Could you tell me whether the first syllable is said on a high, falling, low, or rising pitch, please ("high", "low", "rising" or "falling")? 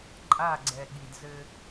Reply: falling